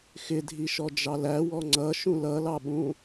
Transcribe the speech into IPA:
x ɪ dʱ i ʃ ɔ d͡ʒ ɑ l æ w ɔ ŋ͡ǀ ʌ ʃ ũ l ʌ l ɑ ɓ ũ

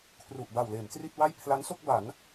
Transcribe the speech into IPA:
kʰ r u˨˩ ʔ b a˨˩ w l eː˩˦ m t r i˥˩ t̚ w a˥˩ j pʰ l a˦˥ n s o˥˩ k̚ b a˩˦ n

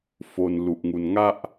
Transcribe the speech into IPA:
f o˧ n l u˨˩ ʔ ŋ u˧ n ŋ a˥˩ ʔ

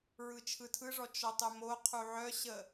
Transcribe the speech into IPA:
ɹ ɯ t͡ʃʰ ɯ tʰ ɯ ʐ ɔ t͡ʃ ɔ tˤ œ m o qʰ u ʕ œ ɕ ə

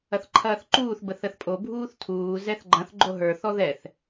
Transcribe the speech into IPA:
ɐ θ ǃʰ ɐː θ ǃ uː θ b ə θ ə θ pʼ o bʱ uː θ tʰ uː z ɛ θ ɡ͡ǃ ɐ̃ θ ɡ͡ǃ o ɦ ə˞ θ ɔ ð ɛ θ

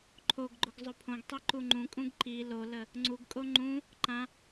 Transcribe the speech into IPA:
ǃʰ o ɡ ɡ͡ǃ ʊ ɡ zˤ ʊ pʰ õ ɡ tˤ i ǃ u ŋ͡ǃ ũ kʼ ũ ɡ ǃ i l o l ə | ŋ͡ǀ u ɡ kʼ o ŋ͡ǃ ũ | ǃ ã

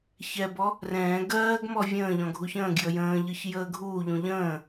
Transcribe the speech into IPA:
ç ɛ b ɔ | r ɛ̃ː ɡ ɜː ɡ m ɔ vʲ ə̃ː ʎ ɔ̃ ɡʱ u ç ə̃ː ɡ j ə j ə̃ː ʎ ɯ ç j əː ɡʱ uː ʎ ũ ʎ ə̃ː

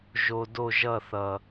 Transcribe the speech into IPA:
ʒ o˨ d o˦˨ ʒ ʌ˦˨ θ ʌ˨

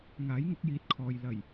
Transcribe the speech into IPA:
ŋ aː˨˥ j ŋ ʊ˨˥ k̚ j iː˨˥ t̚ kʰ ɔː˨ j l ɐ˨˩ j

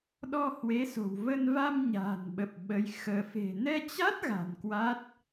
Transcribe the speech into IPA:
ɗ ɔ˧ h w e˨˦ s o̤˨˩ w v ə˧ n v a˧ m ɲ a̤ː˨˩ n ɓ ə˨˩ p̚ ɓ ə˧ j x əː˧ f e̤˨˩ n ɛ˧ t͡ɕ a˦˥ t̚ ɣ a̤˨˩ n k w a˦˥ t̚

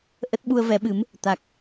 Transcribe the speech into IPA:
ʔ ə˦˥ t̚ ɓ u˧ ə̯ v ɛ˨˦ ɓ ɨ˨˦ m | t̪ a˨˩ k̚

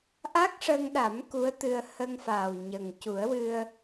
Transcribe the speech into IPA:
ʔ a˦˥ k̚ ʂ ə˧ ŋ ɗ a˨˩˦ m k u˧˥ ə̯ t̪ ɨ˧ ə̯ h ə˧ ŋ f aː˨˩ w ɲ ə˨˩ ŋ c u˨˩˦ ə̯ w ɨ˧ ə̯

